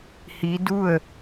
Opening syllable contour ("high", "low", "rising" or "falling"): rising